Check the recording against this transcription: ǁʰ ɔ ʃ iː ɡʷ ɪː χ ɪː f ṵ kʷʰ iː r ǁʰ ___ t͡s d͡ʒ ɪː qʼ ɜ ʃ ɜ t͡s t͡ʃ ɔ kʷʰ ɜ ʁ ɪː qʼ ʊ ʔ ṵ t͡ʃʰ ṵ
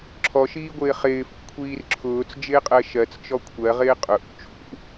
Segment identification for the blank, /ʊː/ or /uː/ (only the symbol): ʊː